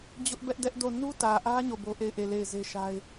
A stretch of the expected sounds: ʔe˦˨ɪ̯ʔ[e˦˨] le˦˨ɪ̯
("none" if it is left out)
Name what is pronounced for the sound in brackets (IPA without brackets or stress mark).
e˦˨